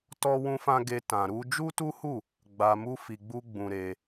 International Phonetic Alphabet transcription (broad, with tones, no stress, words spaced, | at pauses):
tɔ˦wũ˦fã˦ ɡe˧ tã˧ɾu˦ d͡ʒu˦tu˦hu˦˨ | ɡ͡ba˧mu˦ fi˧ɡ͡bu˦ ɡ͡bũ˧ɾe˧